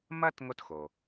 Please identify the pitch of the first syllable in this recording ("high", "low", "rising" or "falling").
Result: high